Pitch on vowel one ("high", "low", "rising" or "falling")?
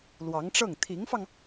rising